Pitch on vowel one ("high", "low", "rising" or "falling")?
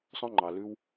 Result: high